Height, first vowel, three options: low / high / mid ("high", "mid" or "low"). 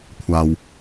low